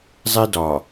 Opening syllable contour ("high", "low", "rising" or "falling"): high